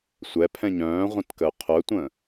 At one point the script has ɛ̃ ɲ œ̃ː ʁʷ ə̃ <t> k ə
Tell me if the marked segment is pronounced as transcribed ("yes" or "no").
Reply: yes